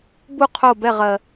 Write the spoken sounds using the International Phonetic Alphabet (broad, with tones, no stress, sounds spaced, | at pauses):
b u˥˨ qʰ o˥˨ b ɛ˥˨ ʁ ɜ˨˩